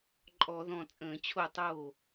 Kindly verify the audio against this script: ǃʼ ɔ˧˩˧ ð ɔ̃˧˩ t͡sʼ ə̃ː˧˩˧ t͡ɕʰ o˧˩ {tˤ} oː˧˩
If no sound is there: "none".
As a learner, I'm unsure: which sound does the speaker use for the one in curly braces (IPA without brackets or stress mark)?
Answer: tˤ